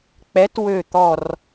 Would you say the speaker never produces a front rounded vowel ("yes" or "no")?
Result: no